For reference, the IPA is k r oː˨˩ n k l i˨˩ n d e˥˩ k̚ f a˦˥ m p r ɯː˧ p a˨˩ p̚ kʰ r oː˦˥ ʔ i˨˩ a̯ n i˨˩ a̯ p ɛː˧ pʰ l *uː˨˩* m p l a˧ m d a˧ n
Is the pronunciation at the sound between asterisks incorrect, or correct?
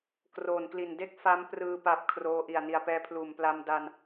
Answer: correct